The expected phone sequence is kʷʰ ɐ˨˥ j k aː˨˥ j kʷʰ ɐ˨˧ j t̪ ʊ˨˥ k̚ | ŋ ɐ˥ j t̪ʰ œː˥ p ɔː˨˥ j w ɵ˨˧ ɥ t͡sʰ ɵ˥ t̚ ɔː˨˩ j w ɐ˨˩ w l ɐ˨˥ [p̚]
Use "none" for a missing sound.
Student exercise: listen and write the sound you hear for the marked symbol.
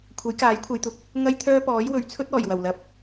p̚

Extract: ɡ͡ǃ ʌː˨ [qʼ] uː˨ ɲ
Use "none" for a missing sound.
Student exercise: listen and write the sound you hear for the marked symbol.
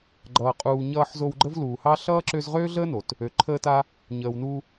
qʼ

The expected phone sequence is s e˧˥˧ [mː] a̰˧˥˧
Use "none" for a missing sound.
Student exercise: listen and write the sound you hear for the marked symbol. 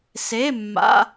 mː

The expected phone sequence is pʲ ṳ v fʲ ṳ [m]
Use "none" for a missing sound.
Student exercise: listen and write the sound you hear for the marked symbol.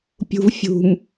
m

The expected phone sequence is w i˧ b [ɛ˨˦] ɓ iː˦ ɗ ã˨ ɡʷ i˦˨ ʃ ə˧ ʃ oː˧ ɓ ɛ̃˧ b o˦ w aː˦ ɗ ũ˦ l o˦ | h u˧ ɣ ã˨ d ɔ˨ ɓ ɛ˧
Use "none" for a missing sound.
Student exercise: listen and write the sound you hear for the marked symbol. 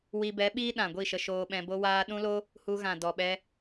ɛ˨˦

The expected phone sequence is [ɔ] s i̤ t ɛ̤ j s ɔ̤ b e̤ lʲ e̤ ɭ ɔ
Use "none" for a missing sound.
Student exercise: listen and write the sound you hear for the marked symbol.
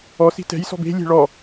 ɔ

